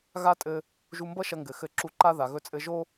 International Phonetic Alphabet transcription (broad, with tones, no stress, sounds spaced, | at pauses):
ɣ a˥ tʼ ɘ˧ | ʒ u˧ m b ʌ˥ ʃ ɐ˧ ŋ ɡ ɘ˩ x ɘ˧ ǁ u˧ ǃ a˥ ð a˩ ɣ ɵ˧ t͡sʼ ɘ˧ ʒ o˥